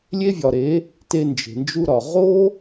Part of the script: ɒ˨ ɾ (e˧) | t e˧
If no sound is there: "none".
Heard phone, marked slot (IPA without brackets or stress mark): e˨˦